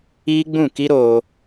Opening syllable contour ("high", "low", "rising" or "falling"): high